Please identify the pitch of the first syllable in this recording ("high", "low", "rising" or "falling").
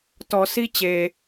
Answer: low